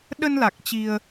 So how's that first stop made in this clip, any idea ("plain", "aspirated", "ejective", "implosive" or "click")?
implosive